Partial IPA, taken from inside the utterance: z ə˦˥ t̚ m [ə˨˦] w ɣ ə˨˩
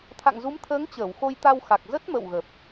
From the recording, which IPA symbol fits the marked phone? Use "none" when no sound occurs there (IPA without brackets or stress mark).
ə̰˧˨